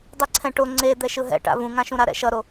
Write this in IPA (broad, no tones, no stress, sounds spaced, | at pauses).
dˤ i ǀʰ ɛ̃ ʈ o ŋ͡ǀ e d̪ ɛ ʃ ɯ ɦ ɛ̰ ʈ a̰ v ũ ŋ ã ʃ ũ ɾ a ɾ ɛ̰ ʃ ʌ ɾ o